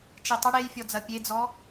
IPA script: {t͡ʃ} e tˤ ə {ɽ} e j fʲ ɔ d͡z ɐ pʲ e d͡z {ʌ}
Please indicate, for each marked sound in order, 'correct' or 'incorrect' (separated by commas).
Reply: correct, correct, incorrect